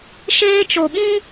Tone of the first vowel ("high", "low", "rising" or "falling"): high